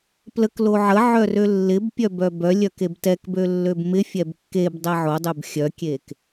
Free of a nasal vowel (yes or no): yes